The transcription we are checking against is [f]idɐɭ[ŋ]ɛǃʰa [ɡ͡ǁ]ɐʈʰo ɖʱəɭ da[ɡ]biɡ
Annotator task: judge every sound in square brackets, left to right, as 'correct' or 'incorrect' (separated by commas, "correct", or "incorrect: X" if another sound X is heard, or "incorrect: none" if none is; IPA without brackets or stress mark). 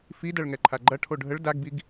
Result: correct, correct, incorrect: ɡ͡ǃ, correct